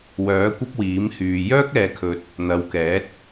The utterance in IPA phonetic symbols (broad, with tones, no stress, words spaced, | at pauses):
wœː˨˥kʷɐ˥p̚ wiː˨˥mhyː˨ jœː˥k̚ɛː˨kʰɵ˨t̚ | n̪ɐ˨˧wkɛː˨˥t̚